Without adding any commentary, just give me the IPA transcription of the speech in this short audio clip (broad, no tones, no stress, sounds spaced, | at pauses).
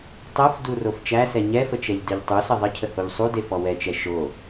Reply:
tˤ ɛ f d u r o f t͡ʃ æ s ɛ ɲ ɛ f ə t͡ʃ ɛ ʎ d e ʎ tˤ u s ə ðˤ ə cʰ ə h o ʎ sˤ u d e f ɔ w ɛ t͡ʃ ɛ ʃ o